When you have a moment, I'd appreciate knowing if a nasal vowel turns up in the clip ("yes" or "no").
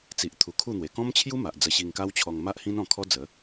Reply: yes